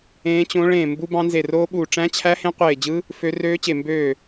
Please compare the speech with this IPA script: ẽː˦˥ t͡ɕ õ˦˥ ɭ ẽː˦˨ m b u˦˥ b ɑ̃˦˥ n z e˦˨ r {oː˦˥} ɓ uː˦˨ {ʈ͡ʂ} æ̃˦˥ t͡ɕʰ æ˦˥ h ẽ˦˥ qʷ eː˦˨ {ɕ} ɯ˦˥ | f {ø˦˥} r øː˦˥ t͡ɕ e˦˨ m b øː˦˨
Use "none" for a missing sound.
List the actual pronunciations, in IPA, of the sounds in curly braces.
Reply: oː˦˥, ʈ͡ʂ, d͡ʑ, ø˦˥

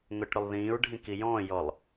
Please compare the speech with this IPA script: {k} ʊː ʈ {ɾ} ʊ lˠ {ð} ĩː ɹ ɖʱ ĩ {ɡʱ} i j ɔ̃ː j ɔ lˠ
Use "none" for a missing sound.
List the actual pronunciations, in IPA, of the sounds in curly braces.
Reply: ŋ, ɾ, ð, k

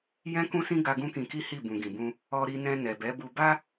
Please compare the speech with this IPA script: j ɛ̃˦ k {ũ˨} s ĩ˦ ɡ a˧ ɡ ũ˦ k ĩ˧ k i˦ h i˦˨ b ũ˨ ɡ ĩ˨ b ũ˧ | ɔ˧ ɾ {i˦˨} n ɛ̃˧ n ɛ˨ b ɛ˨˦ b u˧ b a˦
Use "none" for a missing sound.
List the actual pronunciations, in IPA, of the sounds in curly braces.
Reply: ũ˦, i˧

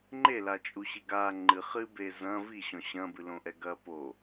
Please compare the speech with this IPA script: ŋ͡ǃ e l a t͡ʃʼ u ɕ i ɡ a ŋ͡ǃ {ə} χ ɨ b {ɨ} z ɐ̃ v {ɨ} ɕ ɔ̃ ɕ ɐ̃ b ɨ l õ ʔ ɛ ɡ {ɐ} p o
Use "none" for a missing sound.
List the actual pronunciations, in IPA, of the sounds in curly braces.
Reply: ɨ, e, i, ɐ

